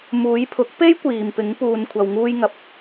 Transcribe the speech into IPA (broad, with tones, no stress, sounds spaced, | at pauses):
m uː˨˧ j pʰ ʊ˨˥ k̚ p e˥ j kʷ iː˨ m p ɪ˨˧ ŋ p uː˨ n kʷʰ ɐ˨ w ŋ uː˧ j ŋ ɐ˨ p̚